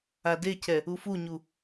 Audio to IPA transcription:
a d e cʰ ɛ | u f u ɲ u

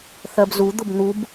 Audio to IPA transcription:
θ ɜ b z u d̪ ʊ b n̪ u b

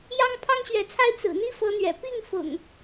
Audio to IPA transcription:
j ɑ˦ ŋ pʰ ɑ˦ ŋ ɕ ɥ ɛ˨˦ t͡sʰ a˦ ɪ̯ t͡s ɹ̩˨˩ n̪ i˦ f ɤ˨˦ n̪ ɥ ɛ̰˨˩ p i˥˨ ŋ f ʊ̰˨˩ ŋ

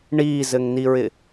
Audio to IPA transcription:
ɳ iː z ɘ ŋ n i ɹ ɪ

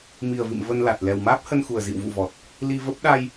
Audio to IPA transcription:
m i˨˩ ə̯ v ḭ˧˨ m v ə˧ n l a˨˩ t̚ l ɛ˨˩ w m aː˦˥ p̚ h ə˧ n x u˨˩ ə̯ z ḭ˧˨ w v ṵ˧˨ v ɔ˨˩ t̚ | l i˧ v ə˦˥ p̚ ɗ a˧ j

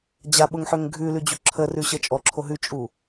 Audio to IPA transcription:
d͡ʑ a ɓ ʊ ŋ ħ ø ŋ ɡʱ ʉ l ʉ d͡ʑ o ǁʰ ə r ʉ ɕ ə t͡ʃʼ ɔ ǁʰ o ɦ ʉ t͡ʃʼ u

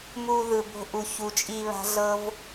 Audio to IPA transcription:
m u˧ ð ɯ˨ b o̤˧ ʔ u˨ ç u˨ t͡ʃʼ i˧ β a̤˦ ɮ ɤ˦ v

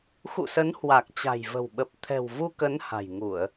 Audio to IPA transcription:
x ṵ˧˨ s ə˨˦ n h w a˨˩ k̚ t͡ɕ a̤˨˩ j v ə̤˨˩ w ɓ ə˨˩ p̚ t̪ʰ ɛ̤˨˩ w v u˧ k ə˨˦ n h a̤˨˩ j ŋ u˧˩˨ ə̯

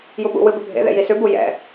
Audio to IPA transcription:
j u ɓ ṵ w ɨ b ɪ bʱ ḛ ð ḛ j i s ʉ b u j ɛ̰

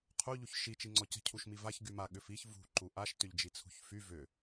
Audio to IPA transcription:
qʰ u ʎ u ç ʃ i t͡ʃ i ŋ͡ǀ ɔ c ə̤ cʰ u ʃ m i v a ç ɡ y m a ɠ ʏ f i ç v ṳ ǃ u ʔ a ʃ t ʏ ʎ d͡ʒ i t͡sʰ ṳ ç f y v ʏ

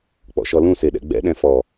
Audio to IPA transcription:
k͡p ɔ̰ ʃ ɔ l ũ s e ɗ ɛ̰ ɡ͡b ɛ̰ ɗ ɛ̃ f ɔ

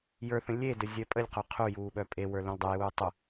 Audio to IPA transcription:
j ə˞ θ ə̃ lʲ e d ə zʲ œ pʼ ə lʲ q ø qʰ u j uː ɓ œ pʼ e w ə˞ l õ l dˤ ə j uː tˤ ʏ

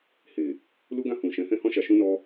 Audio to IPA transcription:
h e˨ | l u˦ ɡ ã˦˨ h ũ˨ ʃ ɛ̃˨˦ h ɛ̃˦ h ɔ̃˦ ʃ a˧ ʃ ũ˦ n ɔ˦

